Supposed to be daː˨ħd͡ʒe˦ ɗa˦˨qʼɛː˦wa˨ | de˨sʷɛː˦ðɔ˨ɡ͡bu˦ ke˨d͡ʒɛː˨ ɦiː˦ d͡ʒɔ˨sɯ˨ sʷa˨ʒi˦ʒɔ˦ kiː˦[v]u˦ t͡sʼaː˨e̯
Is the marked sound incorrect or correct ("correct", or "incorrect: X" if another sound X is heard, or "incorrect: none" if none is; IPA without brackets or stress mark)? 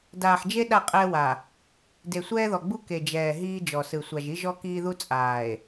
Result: incorrect: ð